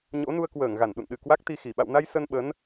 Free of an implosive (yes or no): no